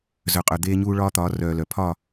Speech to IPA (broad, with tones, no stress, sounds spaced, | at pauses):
z œ˨ qʼ œ˨ d̪ eː˦ ɲ uː˦ ɭ ɒː˦ t̪ ɒː˨˦ r œː˨ l œ˨ pʰ ɒ˦˨